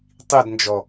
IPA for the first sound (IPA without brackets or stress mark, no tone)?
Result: tˤ